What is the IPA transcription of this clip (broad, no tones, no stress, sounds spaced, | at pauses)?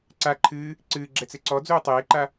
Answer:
ǀ a ǃʰ ɨː | ǀ ɨː ɡ͡ǁ ɛ t͡s e ǀ ɔ d͡z uː tˤ eː ǃ a